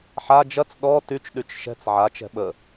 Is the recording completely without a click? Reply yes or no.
yes